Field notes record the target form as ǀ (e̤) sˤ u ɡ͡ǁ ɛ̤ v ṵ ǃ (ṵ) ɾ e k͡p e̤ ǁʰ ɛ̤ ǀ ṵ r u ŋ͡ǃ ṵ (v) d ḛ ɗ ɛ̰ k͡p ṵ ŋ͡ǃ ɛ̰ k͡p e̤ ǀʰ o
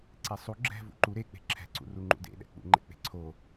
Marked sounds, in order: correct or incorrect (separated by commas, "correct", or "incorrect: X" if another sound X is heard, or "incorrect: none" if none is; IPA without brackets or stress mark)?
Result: incorrect: e, incorrect: u, incorrect: none